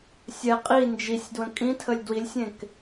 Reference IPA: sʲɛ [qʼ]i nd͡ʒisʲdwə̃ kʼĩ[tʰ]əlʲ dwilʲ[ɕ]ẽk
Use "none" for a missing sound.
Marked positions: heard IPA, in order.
qʼ, tʰ, sʲ

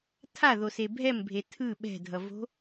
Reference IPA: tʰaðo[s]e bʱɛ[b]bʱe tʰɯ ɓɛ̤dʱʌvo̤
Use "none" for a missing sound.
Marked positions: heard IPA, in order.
s, m

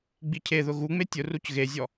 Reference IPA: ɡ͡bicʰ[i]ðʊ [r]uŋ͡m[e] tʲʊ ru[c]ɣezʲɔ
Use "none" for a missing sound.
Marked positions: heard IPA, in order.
e, ɣ, e, c

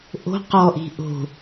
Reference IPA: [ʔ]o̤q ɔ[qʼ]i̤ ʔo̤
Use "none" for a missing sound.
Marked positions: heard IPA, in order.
ʔ, ʔ

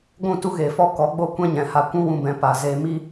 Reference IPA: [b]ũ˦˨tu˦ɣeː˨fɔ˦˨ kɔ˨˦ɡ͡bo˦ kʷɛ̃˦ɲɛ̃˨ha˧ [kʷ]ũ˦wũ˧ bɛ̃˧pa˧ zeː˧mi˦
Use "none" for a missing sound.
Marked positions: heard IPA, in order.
ɡʷ, kʷ

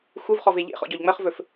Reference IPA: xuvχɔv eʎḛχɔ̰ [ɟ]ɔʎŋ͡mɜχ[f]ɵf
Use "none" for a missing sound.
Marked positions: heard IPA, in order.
ɟ, v

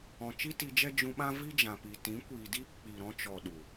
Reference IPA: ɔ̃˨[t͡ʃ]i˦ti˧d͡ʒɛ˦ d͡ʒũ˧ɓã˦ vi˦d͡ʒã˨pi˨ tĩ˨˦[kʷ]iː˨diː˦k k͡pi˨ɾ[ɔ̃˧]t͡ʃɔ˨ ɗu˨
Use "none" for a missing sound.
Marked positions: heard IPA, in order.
t͡ʃ, kʷ, ɔ̃˧

